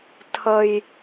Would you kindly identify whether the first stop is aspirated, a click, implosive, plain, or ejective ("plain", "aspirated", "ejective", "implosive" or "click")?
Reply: aspirated